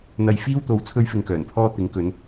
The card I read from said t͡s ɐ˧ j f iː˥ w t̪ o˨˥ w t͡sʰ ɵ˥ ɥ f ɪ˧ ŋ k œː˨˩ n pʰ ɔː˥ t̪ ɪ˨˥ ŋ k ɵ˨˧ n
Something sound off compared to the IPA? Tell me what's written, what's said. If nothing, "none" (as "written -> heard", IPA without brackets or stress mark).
t͡s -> n̪